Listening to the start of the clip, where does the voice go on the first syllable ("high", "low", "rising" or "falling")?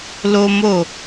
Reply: high